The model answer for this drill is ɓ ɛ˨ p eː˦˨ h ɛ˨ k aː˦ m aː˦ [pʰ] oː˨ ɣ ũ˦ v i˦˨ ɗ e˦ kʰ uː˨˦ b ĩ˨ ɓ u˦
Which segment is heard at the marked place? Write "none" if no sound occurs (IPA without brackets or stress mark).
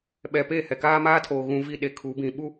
tʰ